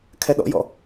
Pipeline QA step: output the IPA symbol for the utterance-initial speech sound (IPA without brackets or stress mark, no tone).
kʰ